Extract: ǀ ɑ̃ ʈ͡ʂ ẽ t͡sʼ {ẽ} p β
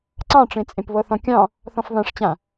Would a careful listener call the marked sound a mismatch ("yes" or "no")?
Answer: no